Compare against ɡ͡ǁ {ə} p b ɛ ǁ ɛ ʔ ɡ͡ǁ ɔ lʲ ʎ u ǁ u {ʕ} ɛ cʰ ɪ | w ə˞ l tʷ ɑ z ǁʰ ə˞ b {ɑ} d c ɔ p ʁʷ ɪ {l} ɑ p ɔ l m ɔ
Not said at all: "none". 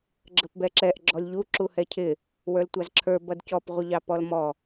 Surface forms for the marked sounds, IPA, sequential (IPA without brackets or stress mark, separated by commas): ə, h, ʌ, ʎ